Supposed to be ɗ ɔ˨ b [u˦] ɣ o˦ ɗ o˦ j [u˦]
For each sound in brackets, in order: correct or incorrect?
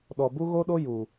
correct, incorrect: u˨

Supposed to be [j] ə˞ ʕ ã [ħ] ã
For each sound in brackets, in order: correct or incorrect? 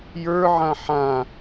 correct, correct

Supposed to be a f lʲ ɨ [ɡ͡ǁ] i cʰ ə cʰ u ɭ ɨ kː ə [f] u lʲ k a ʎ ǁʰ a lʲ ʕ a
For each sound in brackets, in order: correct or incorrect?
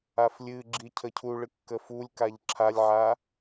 correct, correct

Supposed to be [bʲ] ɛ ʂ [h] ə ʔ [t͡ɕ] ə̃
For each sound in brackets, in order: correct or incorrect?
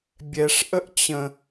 correct, incorrect: ʔ, correct

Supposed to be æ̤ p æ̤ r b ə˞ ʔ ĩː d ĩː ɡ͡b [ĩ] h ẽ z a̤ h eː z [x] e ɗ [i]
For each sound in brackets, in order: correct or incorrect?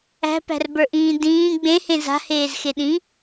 incorrect: ẽ, correct, incorrect: ĩ

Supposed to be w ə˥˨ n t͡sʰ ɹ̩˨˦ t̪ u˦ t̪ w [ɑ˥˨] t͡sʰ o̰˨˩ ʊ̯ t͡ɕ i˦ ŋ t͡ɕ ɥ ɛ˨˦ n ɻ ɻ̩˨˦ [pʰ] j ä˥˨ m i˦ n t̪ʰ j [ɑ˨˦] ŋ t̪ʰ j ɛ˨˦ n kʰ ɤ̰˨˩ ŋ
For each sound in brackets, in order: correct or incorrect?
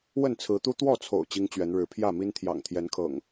incorrect: ɔ˥˨, correct, incorrect: ɑ̰˨˩

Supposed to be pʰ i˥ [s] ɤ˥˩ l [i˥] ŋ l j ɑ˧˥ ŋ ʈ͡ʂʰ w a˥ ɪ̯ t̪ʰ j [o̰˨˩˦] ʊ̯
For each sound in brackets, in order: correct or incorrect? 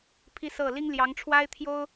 correct, correct, incorrect: o˥

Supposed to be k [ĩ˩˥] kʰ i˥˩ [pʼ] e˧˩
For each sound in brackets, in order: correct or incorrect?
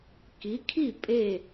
incorrect: i˩˥, correct

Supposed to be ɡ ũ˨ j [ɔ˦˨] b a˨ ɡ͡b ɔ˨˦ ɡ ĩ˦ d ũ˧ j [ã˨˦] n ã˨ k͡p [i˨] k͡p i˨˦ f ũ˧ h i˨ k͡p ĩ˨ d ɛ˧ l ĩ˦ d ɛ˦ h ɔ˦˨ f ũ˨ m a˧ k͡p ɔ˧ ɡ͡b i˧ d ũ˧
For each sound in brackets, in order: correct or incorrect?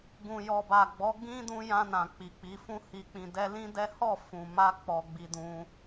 incorrect: ɔ˨, incorrect: ã˧, correct

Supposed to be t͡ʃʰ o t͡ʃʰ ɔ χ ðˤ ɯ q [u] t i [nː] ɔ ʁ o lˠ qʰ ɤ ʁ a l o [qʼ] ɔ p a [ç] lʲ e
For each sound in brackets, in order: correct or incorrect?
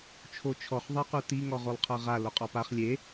correct, incorrect: ŋ, correct, incorrect: χ

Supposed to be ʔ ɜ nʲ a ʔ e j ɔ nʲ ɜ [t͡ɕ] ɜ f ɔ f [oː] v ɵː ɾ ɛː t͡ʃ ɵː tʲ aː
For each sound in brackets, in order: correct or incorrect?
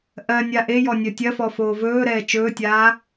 incorrect: tʲ, correct

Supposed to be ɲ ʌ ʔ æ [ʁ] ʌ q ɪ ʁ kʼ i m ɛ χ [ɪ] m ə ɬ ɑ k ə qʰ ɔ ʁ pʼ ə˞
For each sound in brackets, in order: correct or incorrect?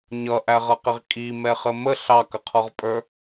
correct, incorrect: ə

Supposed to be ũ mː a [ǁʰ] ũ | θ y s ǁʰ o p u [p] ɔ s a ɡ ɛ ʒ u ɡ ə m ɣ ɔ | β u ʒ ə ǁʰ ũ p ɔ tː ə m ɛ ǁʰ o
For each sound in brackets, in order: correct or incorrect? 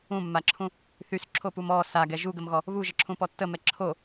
correct, incorrect: m

